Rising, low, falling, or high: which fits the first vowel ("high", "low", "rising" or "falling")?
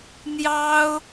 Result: high